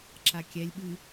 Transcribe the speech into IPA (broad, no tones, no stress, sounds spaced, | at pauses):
ǁ a kʲ ɛ lʲ ɓ ɨ